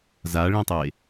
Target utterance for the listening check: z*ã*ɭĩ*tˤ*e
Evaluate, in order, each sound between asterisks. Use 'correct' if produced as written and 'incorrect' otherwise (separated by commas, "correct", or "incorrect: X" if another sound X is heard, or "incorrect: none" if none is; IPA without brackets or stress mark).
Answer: incorrect: a, correct